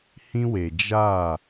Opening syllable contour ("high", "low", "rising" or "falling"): high